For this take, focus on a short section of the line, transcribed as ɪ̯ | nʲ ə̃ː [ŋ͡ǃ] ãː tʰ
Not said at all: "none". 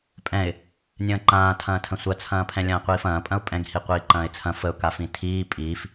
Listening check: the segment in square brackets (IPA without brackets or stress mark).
ǃ